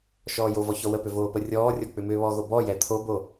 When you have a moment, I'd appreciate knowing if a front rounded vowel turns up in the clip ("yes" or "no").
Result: yes